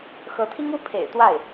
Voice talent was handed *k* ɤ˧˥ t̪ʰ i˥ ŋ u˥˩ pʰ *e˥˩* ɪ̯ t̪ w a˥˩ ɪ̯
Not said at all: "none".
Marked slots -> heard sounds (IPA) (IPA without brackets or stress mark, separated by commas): x, ḛ˨˩